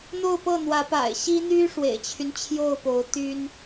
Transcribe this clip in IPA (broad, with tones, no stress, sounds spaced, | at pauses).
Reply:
n̪ o˥˧ ʊ̯ p ɤ˥˩ n̪ w ä˧˥ p a̰˨˩ ɪ̯ ɕ i˥ n̪ y˥ ʂ w ḛ˨˩ ɪ̯ t͡ɕʰ y˦ n t͡ɕʰ j o˥˩ ʊ̯ p o˧˥ ʊ̯ t̪ y˥ n